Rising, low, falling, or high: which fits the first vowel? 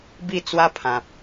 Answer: falling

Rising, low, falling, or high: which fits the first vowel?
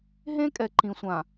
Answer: high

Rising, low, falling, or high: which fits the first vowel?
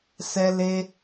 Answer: high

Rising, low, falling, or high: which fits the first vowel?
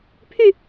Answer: falling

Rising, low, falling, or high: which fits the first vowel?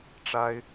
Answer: high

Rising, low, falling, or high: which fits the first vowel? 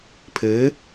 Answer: rising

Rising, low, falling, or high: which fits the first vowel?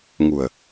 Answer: low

